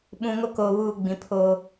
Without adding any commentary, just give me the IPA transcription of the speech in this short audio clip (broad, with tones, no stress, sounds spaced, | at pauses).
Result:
ɓ ũ˨ ŋ o˦ k oː˨ β uː˨ ɡ͡b ĩ˨ pʰ oː˦